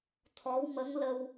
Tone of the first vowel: rising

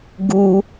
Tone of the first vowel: high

